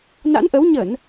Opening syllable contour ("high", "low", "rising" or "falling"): rising